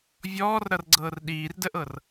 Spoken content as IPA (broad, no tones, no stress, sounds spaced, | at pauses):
vʲ ɔː r ɾ ʌ r ɡ͡ǀ ɤː r ɗ iː r d ə ʔ ɤ r